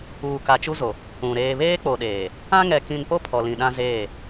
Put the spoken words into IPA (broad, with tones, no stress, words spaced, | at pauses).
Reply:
uː˨ka˨t͡ʃu˦zo˨ | ũ˨ ɾeː˨βeː˦k͡po˨ɗeː˨ | ã˦ŋɛ˨ kĩ˨npo˦ pʰɔ˨lĩ˨ɗã˦zeː˦˨